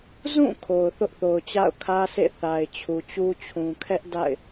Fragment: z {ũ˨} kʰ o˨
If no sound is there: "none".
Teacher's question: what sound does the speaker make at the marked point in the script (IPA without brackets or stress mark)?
ũ˦˨